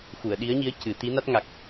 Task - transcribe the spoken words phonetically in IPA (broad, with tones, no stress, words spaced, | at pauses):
xu˨˩˨ə̯ɗi˧˥ə̯ɲi˧˥ə̯ cɨ˨˩˦ t̪i˧˥na˦˥t̚ŋa˨˩k̚